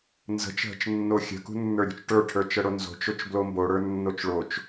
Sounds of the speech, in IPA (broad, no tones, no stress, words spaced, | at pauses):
nzə̤t͡ʃɦə̤t͡ʃnːo xʲə̤kṳnːə˞ɾʲṳt͡ʃ ʈə˞ʈʰə˞t͡ʃəɽo nzo̤t͡ʃot͡ʃblo mboɽə˞nːot͡ʃ ɭot͡ʃ